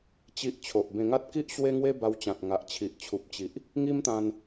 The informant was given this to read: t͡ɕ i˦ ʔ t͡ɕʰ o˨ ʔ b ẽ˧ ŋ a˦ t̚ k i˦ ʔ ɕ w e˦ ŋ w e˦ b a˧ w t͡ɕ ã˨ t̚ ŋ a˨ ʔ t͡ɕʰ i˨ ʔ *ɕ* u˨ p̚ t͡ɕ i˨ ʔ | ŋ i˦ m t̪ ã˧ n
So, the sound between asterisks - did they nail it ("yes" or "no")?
no